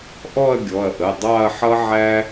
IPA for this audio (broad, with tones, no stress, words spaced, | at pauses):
ʔɔ˥˧ɐ̯ɡʲɔ˩˧˩ɐ̯ʔə˩˧˩ dˤɑ˥˧ɐ̯ħʌ˥ʕæ˥